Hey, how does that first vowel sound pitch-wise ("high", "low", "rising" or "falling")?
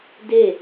falling